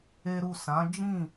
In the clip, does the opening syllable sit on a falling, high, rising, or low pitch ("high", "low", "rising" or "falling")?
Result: high